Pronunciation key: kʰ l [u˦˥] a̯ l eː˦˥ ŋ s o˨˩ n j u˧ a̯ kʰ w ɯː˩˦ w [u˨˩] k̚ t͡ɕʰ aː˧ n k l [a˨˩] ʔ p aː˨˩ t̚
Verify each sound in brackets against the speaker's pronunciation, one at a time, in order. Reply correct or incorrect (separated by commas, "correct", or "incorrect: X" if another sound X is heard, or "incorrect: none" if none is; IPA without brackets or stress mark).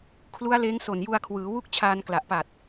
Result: correct, incorrect: u˥˩, correct